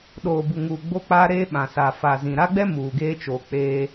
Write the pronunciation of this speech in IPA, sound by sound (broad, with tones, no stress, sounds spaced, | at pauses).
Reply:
ɗ oː˨ b u˨ ŋ uː˨ ɡ͡b o˦ k͡p aː˦ ɾ eː˦ ɓ ã˨ s aː˨ f a˨ z ĩ˨ ɾ a˦ ɡ͡b ɛ˦ m uː˨ ɡ eː˦ t͡ʃ oː˨ k͡p eː˦